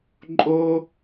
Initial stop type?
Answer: click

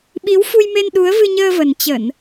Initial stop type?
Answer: implosive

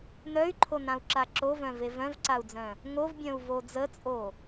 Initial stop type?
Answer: click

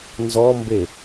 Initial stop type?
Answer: plain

